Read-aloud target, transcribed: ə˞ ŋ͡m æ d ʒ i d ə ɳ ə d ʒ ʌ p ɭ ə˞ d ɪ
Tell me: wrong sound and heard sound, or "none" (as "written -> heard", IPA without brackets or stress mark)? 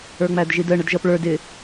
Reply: none